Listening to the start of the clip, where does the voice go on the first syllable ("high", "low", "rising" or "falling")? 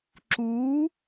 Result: rising